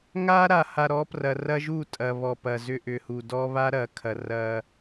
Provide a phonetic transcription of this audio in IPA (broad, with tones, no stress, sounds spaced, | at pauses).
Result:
ŋ a˦ ɾ a˨ h a˨ ɾ ɔ˨˦ p r ɐ˨ r ɐ˦ ʒ u˦˨ tʼ ɐ˨ β ɔ˨ p ɐ˨ z ʏ˦ ʔ ʏ˨ h u˨ d ɔ˦ β a˦ ɾ ɐ˨˦ kʰ ɐ˨ r ɐ˦